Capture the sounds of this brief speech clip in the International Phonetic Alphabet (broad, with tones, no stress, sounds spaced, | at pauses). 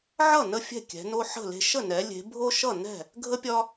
ʕ ʌ˥˩ n ə˥˩ fʲ ɛ̤˥˩ kʲ ɛ̤˩˧ n o˦ ħ ə̤˥˩ l e̤˦ ʃ ə˥˩ n ɛ˩˧ lʲ e̤˩˧ bʱ o˦ ʃ ʌ˥˩ n ɛ̤˥˩ | ɡʱ ə˦ pʲ ɒ˦